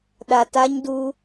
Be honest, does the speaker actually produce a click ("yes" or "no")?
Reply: no